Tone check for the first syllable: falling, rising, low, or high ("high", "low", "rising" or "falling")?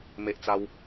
high